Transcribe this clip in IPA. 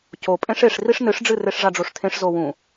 co pʼẽʂeʂ riʂnɨʂɖ͡ʐɨ reʂʐaɖ͡ʐoʂtʰẽʂ zowũ

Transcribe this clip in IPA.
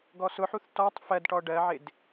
ɡɔsʊħuθ tɔtˤ fɜdʈɔ ɖɜʕɪd

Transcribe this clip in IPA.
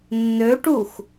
nːøʈux

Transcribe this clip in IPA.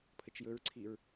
pʰət͡ʃjɵɹǀʰiɹ

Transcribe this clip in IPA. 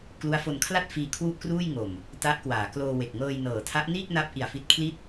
klu˦˥a̯fo˧nkʰla˥˩t̚fiː˧ kʰwu˥˩ʔkruː˥˩j ŋo˨˩m | ta˦˥ʔkwaː˩˦kloː˧we˨˩k̚ ŋɤː˧jnɤː˨˩ tʰa˦˥ʔniː˥˩k̚na˦˥p̚ ʔi˨˩a̯fi˦˥t̚ kʰli˥˩t̚

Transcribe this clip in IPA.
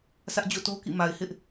sʰä˦ʔd͡ʑo̰˦˨to˦kḭ˦˨ ma˨ɪ̯ hɪ˦ʔ

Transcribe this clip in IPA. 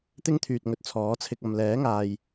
t̪ɪ˥ŋt̪ʰyː˨t̚ ŋɵ˧t̚t͡sʰɔː˨˥t͡sʰɪ˧k̚ɐ˨m lɛː˨˥ŋaː˨j

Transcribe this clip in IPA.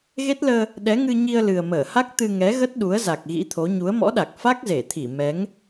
ɣe˦˥t̚ləː˧ | ɗɛ˨˦ŋɨ˧ ɲi˧ə̯lɨ˨˩ə̯məː˧˩ha˦˥k̚ t̪ɨ˧ŋɛ˨˦ɣə˦˥t̚ɗu˨˦ə̯ za˨˩k̚ɣḭ˧˥t̪ʰo˨˦ ɲu˨˦ə̯mɔ̰˧˥ɗa˨˩k̚ fa˦˥k̚ze˧˩t̪ʰi˧˩ mɛ˨˦ŋ

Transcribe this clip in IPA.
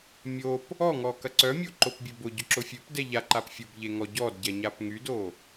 mʲop | ɔŋɔ kɐǀœmʲo ǃopbʲøbʊɟʊ ǁʊfʲøpdɛ ʎaǃap fʲʊbʎe ŋɔɟɔdɟɛ ɲapŋydo

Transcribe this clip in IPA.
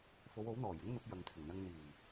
fo˨˧wo˨˥wn̪ɔː˨˩jɪ˥ŋ n̪ʊ˨˥k̚jɐ˨ŋt̪ʰɪ˨˩ŋn̪ɐ˧ŋ n̪iː˨˩

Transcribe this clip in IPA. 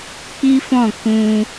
k͡pi˦fɔ̃˦˨ kũ˧

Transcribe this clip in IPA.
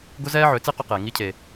ɡʊ˦zɛː˦ʕø˨˦t͡si˦ qʊ˦qeː˨ ŋi˦cʰe˨

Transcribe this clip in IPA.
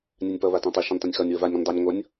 nʲanʲpʌ βatãtˤʌ ʃɐ̃nʲtˤɐ̃nʲxʌnʲ wəvanʲ ɾɔ̃nʲdˤanʲ ŋʷʌnʲ

